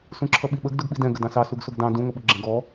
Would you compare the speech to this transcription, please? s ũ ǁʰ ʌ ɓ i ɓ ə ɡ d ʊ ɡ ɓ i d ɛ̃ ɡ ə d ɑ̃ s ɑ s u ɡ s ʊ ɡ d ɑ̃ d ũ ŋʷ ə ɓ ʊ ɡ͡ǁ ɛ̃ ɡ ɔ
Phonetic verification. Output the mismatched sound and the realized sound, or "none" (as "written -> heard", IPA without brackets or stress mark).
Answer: none